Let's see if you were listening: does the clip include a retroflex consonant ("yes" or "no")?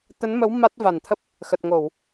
no